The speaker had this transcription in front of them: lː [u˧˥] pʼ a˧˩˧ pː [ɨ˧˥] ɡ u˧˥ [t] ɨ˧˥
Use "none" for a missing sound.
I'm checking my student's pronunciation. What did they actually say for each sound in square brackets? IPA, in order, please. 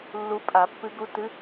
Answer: u˧˥, ɨ˧˥, t

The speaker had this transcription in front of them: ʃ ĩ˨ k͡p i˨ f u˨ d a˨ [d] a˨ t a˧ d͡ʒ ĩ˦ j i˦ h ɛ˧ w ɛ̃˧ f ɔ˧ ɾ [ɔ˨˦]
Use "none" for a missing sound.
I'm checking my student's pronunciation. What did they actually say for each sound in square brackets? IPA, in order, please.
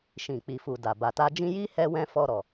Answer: b, ɔ˨

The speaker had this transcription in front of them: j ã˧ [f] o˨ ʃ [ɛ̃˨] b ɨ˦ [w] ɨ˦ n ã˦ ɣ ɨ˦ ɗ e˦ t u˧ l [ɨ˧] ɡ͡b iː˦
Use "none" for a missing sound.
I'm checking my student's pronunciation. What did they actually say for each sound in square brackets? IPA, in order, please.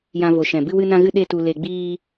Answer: v, ɛ̃˨, w, e˧

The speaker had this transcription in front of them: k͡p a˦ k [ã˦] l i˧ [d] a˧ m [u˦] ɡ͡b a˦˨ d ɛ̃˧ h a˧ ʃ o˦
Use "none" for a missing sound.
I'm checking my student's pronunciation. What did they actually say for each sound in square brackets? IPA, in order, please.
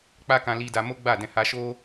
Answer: ã˧, d, o˦

